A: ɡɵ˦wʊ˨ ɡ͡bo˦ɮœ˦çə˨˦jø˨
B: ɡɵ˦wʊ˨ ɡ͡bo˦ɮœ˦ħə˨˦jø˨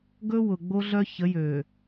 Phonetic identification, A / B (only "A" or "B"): A